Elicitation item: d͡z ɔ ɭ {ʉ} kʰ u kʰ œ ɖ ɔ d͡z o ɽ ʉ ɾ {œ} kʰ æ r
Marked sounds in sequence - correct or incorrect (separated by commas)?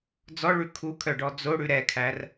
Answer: correct, incorrect